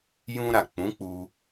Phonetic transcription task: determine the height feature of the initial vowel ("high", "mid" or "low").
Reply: high